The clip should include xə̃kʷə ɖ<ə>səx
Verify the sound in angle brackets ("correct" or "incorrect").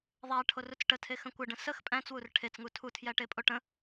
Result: incorrect